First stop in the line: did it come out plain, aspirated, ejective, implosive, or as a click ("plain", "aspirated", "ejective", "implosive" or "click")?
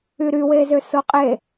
ejective